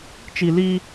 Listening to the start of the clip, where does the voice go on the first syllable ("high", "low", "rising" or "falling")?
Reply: high